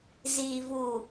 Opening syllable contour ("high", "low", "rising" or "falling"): low